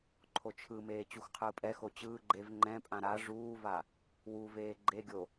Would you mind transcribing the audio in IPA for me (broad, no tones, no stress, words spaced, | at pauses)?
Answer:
ǃʰot͡ʃʰɯmeː t͡ɕuxqʰɯːpʼɛxo t͡ɕɯː ɡ͡ǃev ŋ͡ǃɛ̃pʼã ɾa ʐuːva | wuveː ɡ͡ǃeɡʲo